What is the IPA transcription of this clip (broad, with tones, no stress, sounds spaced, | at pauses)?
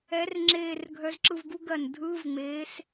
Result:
ɛ˨˥ r ŋ͡ǁ eː˧˩ r ɡʱ œ˨˥ z ǁ ɯ˧˩ v ɡ u˧˥˧ ɡ ɜ˩ n dʱ ɯː˧˥˧ v ŋ͡m eː˨˥ s